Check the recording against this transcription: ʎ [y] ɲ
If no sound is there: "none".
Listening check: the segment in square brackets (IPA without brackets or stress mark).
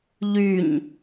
y